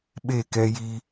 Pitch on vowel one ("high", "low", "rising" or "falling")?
falling